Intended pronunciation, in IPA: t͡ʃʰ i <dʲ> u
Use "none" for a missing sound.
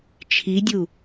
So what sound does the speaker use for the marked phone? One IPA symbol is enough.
dʲ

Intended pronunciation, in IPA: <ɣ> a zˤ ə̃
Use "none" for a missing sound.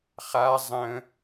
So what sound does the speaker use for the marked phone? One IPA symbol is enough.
χ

